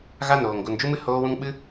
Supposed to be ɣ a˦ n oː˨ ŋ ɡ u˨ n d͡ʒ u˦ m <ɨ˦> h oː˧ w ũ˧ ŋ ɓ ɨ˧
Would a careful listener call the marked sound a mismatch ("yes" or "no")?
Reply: no